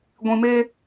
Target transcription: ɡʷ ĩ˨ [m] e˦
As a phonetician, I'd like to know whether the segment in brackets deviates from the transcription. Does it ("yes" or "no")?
no